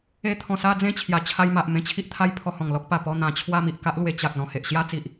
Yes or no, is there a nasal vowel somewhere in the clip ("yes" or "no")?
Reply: yes